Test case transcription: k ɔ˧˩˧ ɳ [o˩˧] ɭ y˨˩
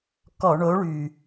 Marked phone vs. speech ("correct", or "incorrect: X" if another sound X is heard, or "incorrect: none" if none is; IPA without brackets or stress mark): incorrect: o˨˥